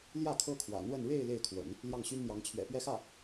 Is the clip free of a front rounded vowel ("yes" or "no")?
no